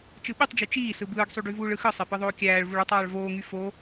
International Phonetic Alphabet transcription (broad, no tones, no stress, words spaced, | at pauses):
t͡ʃɯɓytˤd͡ʒy t͡ʃiː sɯbɯːɡsˤyɖy vuːɭɯxɯ sˤepɯðˤoːkʲæːɭ vuɭutˤɑːɭ voːŋy fo